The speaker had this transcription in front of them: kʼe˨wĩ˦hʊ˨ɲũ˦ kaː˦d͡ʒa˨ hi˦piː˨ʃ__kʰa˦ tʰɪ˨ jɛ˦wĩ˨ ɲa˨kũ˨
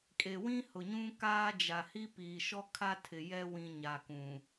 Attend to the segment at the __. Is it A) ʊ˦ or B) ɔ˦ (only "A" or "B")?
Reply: B